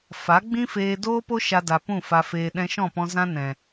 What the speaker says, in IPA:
f a˨˦ ɡ͡b ĩ˦ f eː˧ d oː˧ p o˧ ʃ a˧ d a˨ p ũ˦˨ f a˧ f eː˧ ɗ ɛ̃˧ ʃ ɔ̃˦˨ p ɔ̃˧ z ã˦ n ɛ̃˨

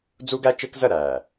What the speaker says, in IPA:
d͡z u˦ ɡ æ˦ t͡ʃ ɪː˦ k z ɜ˦˨ ɾ æː˨

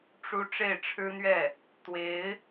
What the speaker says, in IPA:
ʈ͡ʂ u˥ ʈ͡ʂ e˥˩ ɪ̯ ʈ͡ʂʰ ɻ̩˥ n̪ ɥ ɛ˥˩ | t̪ w e˧˥ ɪ̯

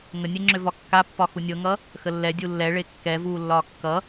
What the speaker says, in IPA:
ŋ ə nʲ ɛ ŋ͡ǁ ʏ v ɒ kː a pː ɒ x u nʲ ɤ ŋ ʌ | x ə lː ɛ dʲ u lː ɛ ɭ e kː ɛ v uː lː ɒː kː ʌ

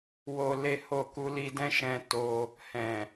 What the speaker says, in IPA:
w o˧ l e˦ h o˦˨ k u˧ l i˧ d ɛ̃˦ ʃ ɛ̃˧ t o˧ | h ɛ̃˨

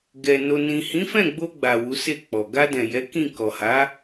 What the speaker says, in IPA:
ɡ ɛ˨ n o˨ n ĩ˨ h ĩ˨˦ f ɛ̃˦˨ ɡ͡b o˧ ɡ͡b a˨ w u˨˦ s e˦˨ k͡p ɔ˨ ɡ a˧ d ɛ̃˨ j ɛ˨˦ k ĩ˦˨ k ɔ˨ h a˨˦

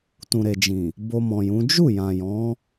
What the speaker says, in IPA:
t ũ˨ ɾ e˨ d͡ʒ ĩ˨ | b o˧ m ɔ̃˨ j ũ˨˦ d͡ʒ u˦˨ j ã˨ j ɔ̃˨˦

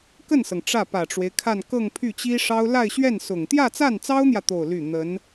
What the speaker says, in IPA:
k ə˥˩ n s ɤ˩ ŋ ʈ͡ʂ ä˥˩ p ä˨˩ ʈ͡ʂ w e˦ ɪ̯ kʰ a˥˧ n k ɤ˥˧ ŋ pʰ y˥˩ t͡ɕ i˥ ʂ ɑ˥ ʊ̯ l a˥˧ ɪ̯ ɕ ɥ ɛ˥˩ n s ʊ˨˩ ŋ t̪ j ä˥˧ t͡s a˥˩ n t͡s ɑ˥ ʊ̯ n̪ j ä˨ t̪ o˥˧ ʊ̯ l y˥˩ n̪ ə˧˥ n

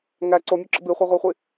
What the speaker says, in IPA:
ŋ æ ǀ o mʲ o ǁ ə̰ b i χʷ a ʁʷ æ χʷ i

